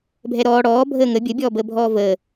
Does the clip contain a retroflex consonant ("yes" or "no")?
yes